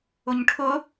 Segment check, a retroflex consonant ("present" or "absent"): present